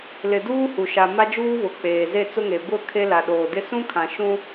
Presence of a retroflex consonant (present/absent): absent